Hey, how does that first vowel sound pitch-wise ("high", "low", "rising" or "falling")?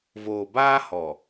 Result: low